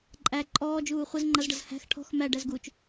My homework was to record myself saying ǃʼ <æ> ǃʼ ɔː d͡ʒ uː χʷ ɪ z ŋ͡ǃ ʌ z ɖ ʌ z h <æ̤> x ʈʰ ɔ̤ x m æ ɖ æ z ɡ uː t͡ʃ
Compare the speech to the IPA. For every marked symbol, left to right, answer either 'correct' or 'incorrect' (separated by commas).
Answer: correct, correct